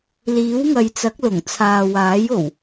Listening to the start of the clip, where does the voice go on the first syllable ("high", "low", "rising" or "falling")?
rising